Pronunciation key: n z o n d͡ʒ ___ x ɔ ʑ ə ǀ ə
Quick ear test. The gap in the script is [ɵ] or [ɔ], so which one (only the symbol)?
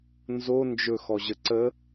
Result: ɵ